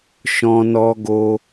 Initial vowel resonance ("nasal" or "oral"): nasal